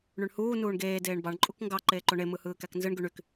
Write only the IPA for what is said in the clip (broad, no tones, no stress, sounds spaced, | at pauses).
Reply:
ɳ y ɳ h uː n uː ɳ ɡ eː d eː ɳ b ɑ ɳ ǃʼ u k ŋ ɡ ɑ ǃ eː ǃ o ɳ e m ɯ h ɯː k æ k n z ɯ ɳ ɡ y ɳ y k